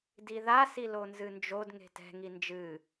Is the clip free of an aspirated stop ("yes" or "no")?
yes